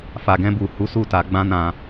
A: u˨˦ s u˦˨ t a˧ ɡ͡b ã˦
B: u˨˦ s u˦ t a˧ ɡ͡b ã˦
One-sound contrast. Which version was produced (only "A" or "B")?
A